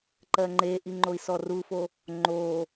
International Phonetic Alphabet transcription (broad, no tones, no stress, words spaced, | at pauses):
ǃɜŋ͡ǃeʔiŋ͡ǃoi̯ sɔrufo | ŋ͡ǃo